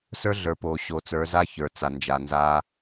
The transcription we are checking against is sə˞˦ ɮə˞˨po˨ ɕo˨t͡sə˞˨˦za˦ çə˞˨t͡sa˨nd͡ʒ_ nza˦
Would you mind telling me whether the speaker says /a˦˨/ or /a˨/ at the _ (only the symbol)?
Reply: a˨